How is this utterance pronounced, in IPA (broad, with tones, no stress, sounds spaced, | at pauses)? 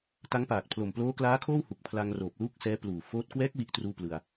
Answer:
t a˦˥ ŋ p aː˨˩ t̚ pʰ l o˨˩ m p l oː˦˥ k l aː˦˥ kʰ oː˥˩ w h u˨˩ k̚ pʰ l a˧ ŋ r oː˨˩ p̚ l uː˥˩ k̚ s ɛː˦˥ p l uː˨˩ f oː˦˥ t̚ k w ɛː˦˥ k̚ w i˦˥ ʔ t r uː˥˩ p l ɯ˧ a̯